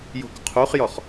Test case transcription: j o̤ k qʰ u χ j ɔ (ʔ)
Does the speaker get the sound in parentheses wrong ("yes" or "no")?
yes